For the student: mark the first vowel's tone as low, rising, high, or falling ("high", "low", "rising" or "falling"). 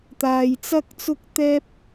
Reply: low